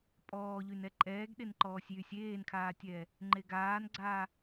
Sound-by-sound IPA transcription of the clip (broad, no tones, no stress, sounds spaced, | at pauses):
pʼ ɔː ʎ y n ɛ ǃʼ ɛː ɡ ɗ e n ǃ ɔː sʲ j y sʲ eː n kʰ aː tʲ ɛː | ŋ͡ǃ e ɡ aː n ɡ͡ǀ aː